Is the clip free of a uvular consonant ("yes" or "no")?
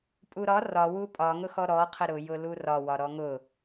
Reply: no